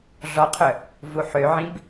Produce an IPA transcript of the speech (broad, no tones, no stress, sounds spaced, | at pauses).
ɮ ɔ qʰ œ | v u ħ ø ʕ ĩ b